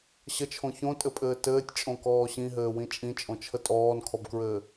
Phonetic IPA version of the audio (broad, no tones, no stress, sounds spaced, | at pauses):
ɕ ə t͡ʃʰ õ ç õ tʼ ɘ pʼ ɘː t ɘː tʲ t͡ʃʼ õ k ɔː ɕ ĩ ɦ ɘː w ĩ t͡ʃʼ ĩ t͡ʃʼ õ t͡ʃʰ ə tʼ ɔː n kʰ ɔ b k ɹ ɘː